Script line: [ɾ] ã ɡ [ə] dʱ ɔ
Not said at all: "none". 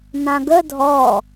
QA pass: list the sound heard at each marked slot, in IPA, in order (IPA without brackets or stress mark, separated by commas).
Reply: n, ə